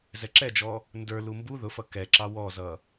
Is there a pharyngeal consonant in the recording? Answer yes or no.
no